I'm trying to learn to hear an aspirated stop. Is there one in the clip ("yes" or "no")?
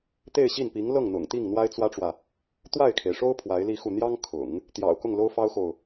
yes